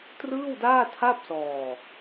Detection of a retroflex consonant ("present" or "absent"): absent